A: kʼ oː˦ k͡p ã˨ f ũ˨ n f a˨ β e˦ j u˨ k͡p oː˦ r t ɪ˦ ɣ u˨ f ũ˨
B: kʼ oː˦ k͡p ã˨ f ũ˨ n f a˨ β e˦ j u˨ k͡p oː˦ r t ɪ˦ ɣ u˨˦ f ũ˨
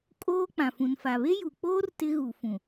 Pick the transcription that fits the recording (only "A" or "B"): A